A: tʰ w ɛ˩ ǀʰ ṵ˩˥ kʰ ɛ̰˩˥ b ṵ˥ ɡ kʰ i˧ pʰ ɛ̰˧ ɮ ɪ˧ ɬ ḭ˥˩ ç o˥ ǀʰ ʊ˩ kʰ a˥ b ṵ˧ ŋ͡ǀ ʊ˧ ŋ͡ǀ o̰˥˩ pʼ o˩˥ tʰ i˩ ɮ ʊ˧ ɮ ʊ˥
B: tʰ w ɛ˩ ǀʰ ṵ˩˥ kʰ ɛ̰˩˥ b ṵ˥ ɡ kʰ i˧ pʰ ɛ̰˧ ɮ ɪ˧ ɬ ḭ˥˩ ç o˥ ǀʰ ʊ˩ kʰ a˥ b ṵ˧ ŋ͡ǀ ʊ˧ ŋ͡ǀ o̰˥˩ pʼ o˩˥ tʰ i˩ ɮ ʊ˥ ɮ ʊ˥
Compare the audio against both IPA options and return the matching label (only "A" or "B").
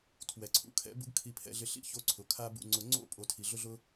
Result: B